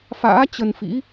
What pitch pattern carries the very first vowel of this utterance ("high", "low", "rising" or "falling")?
rising